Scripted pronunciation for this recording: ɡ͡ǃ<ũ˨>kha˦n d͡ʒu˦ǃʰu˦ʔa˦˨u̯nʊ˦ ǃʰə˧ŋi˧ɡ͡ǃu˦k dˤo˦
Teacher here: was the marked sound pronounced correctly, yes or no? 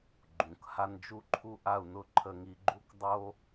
yes